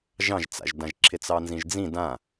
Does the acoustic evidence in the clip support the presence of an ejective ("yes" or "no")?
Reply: no